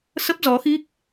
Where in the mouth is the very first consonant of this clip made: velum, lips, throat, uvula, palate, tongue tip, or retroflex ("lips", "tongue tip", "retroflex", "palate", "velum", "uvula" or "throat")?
tongue tip